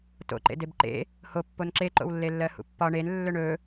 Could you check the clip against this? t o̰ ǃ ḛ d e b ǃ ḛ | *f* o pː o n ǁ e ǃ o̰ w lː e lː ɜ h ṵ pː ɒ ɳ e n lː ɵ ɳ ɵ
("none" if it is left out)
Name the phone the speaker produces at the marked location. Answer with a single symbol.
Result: h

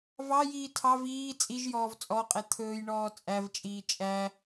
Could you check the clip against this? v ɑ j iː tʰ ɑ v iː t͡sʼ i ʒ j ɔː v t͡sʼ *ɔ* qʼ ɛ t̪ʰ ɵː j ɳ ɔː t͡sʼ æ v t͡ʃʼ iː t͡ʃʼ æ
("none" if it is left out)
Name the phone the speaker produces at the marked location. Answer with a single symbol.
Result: ɔ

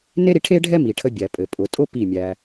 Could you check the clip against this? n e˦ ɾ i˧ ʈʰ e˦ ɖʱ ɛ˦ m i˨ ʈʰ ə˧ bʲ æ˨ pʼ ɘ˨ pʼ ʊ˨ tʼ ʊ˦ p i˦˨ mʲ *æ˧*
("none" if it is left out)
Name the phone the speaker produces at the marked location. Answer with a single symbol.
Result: æ˧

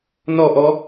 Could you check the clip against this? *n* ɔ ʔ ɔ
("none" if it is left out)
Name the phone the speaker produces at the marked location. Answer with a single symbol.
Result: n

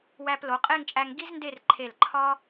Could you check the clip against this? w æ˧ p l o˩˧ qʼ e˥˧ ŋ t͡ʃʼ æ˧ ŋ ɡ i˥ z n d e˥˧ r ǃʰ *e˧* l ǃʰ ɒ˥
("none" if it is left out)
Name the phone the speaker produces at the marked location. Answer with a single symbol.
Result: e˧˩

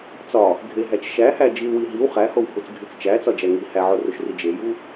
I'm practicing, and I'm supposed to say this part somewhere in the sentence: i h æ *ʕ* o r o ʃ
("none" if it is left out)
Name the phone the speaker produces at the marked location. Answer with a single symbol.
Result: ʕ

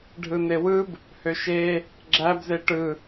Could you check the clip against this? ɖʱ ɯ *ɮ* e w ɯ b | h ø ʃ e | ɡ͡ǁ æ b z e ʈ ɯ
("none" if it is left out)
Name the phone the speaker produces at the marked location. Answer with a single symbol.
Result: n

